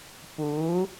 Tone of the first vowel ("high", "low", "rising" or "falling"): rising